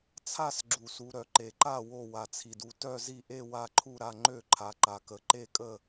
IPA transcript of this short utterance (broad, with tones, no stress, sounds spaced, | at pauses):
t͡sʰ a˦˨ s ɡ͡ǁ u˩ s u˩ ɾ œ˩ ǃ e˩ ǃ a˦˨ w o˦˨ w a˩ t͡sʰ i˩ d u˦˨ t œ˦˨ z i˦˨ ʔ e˦˨ w a˦˨ ǃʰ u˦˨ ɾ a˦˨ ŋ͡ǃ ø˦˨ ǃʰ a˩ ǃ a˩ k ə˩ ǃ e˦˨ kʼ ə˦˨